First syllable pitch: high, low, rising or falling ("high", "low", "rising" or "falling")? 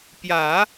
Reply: low